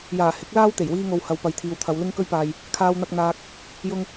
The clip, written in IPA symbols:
j aː˨˩ h ɪ˨˥ k̚ l aː˥ w t̪ e˨˩ j w iː˧ ŋ o˨ w h ɐ˨˧ w p ɐ˨ j t̪ʰ iː˨ w t̪ʰ ɐ˨˧ w l ɪ˧ ŋ k ɵ˧ ɥ p aː˨ j | kʰ aː˧ w n̪ ɐ˧ k̚ n̪ aː˧ k̚ | j ʊ˧ ŋ

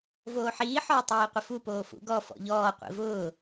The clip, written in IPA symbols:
v oː ħ iː ħ ɔː tˤ iː qʷ ɪ f u p oː f ṵ ɡ ɔ f ɔ̰ ʎ ɔː qʷ ḭ v ʊː

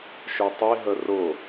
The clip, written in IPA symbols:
ʃ œ tˤ i ɦ ə r ʊ

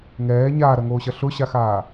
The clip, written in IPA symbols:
ŋ ɛː ɲ aː ɾ ɐ ŋ oː ɕ ɐ ɬ ʊ ɕ a x aː

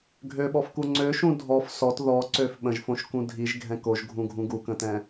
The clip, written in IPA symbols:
ɡʱ ø ɓ ɔ f k u ŋ͡ǀ ø ʃ ũ dʱ ɔ f s ɔ t ð ɔ ǀ ø f ɓ ə̃ ʒ f õ ʃ k ũ dʱ i ʒ ɡʱ ɛ̃ k o ʒ ɡʱ ũ ɡʱ ũ ɡ u k ə̃ t ɛ̃

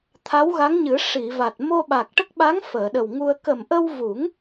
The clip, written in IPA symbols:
t̪ʰ a˧˥ w ɣ a˧˥ ŋ ɲ ɨ˨˩˦ ʂ i˨˩˨ v a˨˩ t̚ m o˧ ɓ a˨˩ k̚ ʈ ə˦˥ k̚ ɓ a˧˥ ŋ f əː˨˩˨ ɗ ə˨˩ w ŋ u˧ ə̯ k ə˨˩ m ʔ ə˧ w v u˨˩˦ ŋ

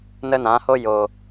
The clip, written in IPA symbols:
n ə˦ n ã˨˦ h o˦ j o˨

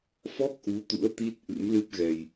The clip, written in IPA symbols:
f ɔ˦˥ k̚ ʔ u˨˦ t̪ ṵ˧˥ ə̯ t̪ i˦˥ t̚ ʔ ɨ̰˧˥ m l ɨ˦˥ p̚ ɣ ɛ˧ j

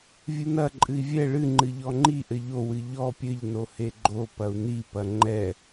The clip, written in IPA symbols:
vʲ ɨ n ɐ ǃʼ ɨ i̯ vʲ ɛ ɭ ɨ ŋ͡ǃ ɨ ʎ ɔ ŋ͡ǃ i ʔ ɘ ʎ o w ɨ ʎ ɔ pʲ ɘ ʎ n o h e ɡ͡ǃ o p ɐ u̯ n i p ɐ ŋ͡ǃ ɛ

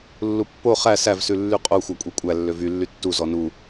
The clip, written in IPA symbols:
lː u pː o χ æ s æ v s ʉ lː y qʼ o xʷ ɑ kʷʼ e kʷʼ æ lː ø v y lː y tː u z ɔ n u

